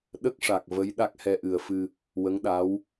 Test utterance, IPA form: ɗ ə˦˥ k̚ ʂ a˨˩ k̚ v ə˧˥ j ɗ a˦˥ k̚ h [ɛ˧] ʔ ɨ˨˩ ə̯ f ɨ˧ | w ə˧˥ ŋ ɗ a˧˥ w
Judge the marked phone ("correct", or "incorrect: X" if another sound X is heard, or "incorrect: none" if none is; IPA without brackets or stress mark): correct